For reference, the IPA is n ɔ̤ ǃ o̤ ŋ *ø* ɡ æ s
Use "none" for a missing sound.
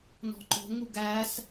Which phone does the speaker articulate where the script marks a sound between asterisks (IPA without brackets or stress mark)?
u